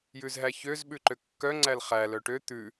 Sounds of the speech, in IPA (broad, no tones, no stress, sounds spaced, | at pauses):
j ʉ z ɦ æ ç ø z ɓ ʉ ǃ ø kː œ ŋ͡ǀ æ l χ æ l œ ʈ ø t̪ ʉ